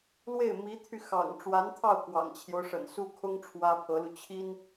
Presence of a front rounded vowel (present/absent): present